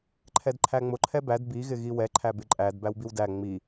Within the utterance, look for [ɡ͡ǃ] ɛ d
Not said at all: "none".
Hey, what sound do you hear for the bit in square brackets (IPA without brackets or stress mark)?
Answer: ǃʰ